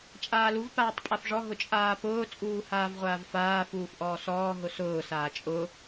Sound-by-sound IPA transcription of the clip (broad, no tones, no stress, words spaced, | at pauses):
t͡ʃʼaːluv paːtˤpʼafʐɔ ɦʊt͡ʃʼaːpʊː t͡sʼuːhaːvʁʷaːvfaː fuːfʔɔːsɔː ɦʊsʊː saːt͡ʃʼʊ